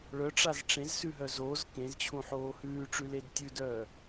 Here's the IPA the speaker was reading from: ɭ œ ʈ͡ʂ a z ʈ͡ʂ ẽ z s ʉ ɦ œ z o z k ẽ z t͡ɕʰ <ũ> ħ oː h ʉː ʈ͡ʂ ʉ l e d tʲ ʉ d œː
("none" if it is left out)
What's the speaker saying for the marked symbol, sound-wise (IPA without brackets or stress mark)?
ũ